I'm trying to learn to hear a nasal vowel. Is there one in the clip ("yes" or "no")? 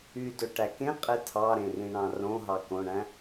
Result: yes